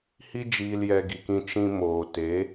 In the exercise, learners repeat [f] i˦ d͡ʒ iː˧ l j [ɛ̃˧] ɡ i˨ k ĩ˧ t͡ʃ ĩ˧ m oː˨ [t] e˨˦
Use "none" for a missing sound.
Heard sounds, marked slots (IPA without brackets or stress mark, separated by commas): h, ɛ˧, t